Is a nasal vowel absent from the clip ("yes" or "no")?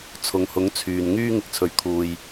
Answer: yes